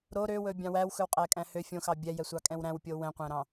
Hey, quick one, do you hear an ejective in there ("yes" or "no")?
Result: yes